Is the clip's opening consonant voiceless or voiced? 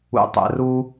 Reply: voiceless